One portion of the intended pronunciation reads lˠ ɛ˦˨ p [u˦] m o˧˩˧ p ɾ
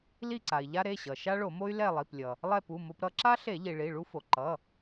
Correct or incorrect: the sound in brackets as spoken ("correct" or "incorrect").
incorrect